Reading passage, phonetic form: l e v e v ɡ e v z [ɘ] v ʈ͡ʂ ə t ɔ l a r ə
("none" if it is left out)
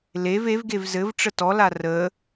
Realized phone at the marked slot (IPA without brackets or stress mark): ɘ